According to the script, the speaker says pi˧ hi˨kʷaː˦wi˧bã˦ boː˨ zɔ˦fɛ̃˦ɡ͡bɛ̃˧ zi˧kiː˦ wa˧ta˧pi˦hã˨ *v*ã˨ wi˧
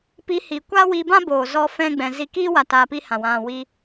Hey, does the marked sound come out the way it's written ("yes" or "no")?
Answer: no